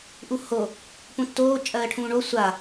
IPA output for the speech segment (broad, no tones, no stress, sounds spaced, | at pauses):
ʔ u h o | p ũ tː oː t͡ʃʼ ɜː ʈʰ ũː ɳ o sʷ a